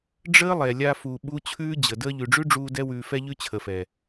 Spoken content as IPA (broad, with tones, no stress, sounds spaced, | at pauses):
ɖ͡ʐ əː˦ lˠ ɛ˨ lʲ a˧ f u˨ ɓ u˦ t͡ɕʰ ʉː˦ d͡ʑ ə˨ d əː˧ ʎ ʉ˨ ɖ͡ʐ ʉ˦ ɖ͡ʐ uː˧ d ɛ˦ w ʉː˧ f ɛ˦ ʎ ʉ˦ t͡ɕʰ ə˨ f ɛ˨